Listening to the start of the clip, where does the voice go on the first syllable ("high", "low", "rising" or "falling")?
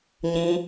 high